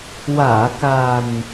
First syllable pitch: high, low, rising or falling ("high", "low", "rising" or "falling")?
low